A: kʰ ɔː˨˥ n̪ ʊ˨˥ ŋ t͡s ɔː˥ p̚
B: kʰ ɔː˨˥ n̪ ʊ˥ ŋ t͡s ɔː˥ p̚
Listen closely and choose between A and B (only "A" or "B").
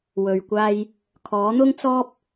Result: B